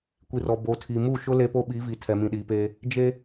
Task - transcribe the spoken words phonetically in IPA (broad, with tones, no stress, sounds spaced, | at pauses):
kʷ i˨ r ɔ˨ b o˨ tʰ i˨ m u˦˨ ʃ ʊ˦ l e˦ p o˦ ɓ i˨˦ v i˨ tʰ ɛ˨ m ĩ˨ ɗ iː˨ p eː˦ | d͡ʒ e˦